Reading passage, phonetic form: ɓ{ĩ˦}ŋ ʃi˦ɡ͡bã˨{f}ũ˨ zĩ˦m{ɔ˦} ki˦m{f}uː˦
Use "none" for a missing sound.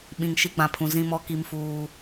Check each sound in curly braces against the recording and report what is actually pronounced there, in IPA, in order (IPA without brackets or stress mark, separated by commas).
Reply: ĩ˨, pʰ, ɔ˦, f